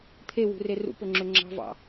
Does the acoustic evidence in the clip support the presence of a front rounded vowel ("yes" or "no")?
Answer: yes